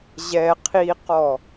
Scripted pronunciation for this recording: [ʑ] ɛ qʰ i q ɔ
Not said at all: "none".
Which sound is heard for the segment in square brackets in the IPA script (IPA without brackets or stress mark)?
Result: ʑ